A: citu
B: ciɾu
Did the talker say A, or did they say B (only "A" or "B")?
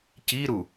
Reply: B